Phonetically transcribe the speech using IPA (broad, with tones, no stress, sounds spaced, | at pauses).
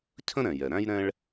cʰ ə̃˥ ɾ ɛ̃˩ j ɛ˩ ɾ æ̃˥ j ɾ ɛ̃˥ ɭ